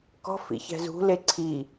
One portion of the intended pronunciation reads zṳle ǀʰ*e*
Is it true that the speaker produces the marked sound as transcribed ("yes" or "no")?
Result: no